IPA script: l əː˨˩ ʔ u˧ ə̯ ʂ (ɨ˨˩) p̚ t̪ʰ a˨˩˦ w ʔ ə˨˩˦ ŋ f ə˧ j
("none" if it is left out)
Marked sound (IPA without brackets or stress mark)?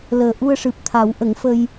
ɨ˨˩